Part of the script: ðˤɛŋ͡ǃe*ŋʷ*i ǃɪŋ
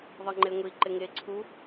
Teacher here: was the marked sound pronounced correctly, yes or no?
yes